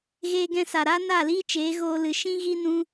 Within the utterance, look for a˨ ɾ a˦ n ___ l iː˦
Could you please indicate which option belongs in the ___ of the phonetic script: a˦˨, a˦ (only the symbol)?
a˦˨